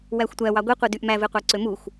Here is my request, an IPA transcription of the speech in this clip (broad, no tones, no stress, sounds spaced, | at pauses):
w æ xʷ tʷ æ w ɑ ɡʷ i qʷ i d y ʔ m æ v e qʷ ɑ ǀ ø m u xʷ